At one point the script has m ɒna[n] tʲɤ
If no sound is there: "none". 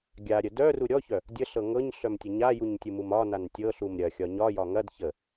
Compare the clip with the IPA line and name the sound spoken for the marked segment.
n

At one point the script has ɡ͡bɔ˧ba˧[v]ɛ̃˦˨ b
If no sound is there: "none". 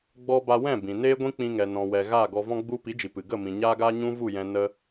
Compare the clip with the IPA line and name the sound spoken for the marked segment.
w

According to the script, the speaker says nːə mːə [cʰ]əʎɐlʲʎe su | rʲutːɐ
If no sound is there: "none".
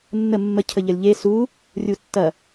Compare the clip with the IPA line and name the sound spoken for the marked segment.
cʰ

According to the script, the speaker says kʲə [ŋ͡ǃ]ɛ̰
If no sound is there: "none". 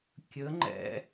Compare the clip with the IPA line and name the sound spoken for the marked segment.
ŋ͡ǃ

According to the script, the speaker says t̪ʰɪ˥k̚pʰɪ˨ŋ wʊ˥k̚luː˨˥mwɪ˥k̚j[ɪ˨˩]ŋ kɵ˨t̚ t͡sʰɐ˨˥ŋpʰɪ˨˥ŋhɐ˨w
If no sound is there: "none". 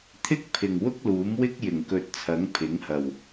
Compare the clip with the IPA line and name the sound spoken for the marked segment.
ɪ˨˩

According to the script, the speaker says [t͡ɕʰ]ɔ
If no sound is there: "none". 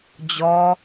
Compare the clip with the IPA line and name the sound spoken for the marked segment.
d͡ʑ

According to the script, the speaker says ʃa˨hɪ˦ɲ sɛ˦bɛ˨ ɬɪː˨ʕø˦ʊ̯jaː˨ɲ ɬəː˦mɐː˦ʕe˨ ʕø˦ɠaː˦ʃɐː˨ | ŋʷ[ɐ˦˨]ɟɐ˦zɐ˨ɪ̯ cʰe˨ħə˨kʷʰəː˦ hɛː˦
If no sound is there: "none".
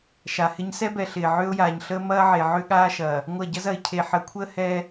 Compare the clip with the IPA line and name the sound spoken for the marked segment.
ɐ˦˨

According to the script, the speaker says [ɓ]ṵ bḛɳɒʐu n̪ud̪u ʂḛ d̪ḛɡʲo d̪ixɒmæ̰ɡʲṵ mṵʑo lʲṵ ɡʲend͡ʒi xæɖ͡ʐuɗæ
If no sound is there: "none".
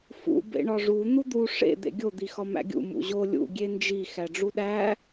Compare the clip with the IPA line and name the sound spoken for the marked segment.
f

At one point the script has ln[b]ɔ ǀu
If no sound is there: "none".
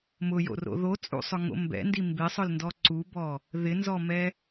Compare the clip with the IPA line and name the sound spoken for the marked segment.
d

